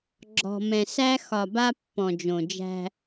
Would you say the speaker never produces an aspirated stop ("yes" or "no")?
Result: yes